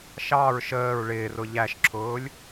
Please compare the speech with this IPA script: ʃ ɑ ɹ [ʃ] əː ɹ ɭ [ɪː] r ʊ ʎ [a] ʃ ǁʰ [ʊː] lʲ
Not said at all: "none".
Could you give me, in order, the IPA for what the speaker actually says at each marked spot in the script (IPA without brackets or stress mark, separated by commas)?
ʃ, ɪː, æ, ʊː